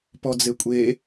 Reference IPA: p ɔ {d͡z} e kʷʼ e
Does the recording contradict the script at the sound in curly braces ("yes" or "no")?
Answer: no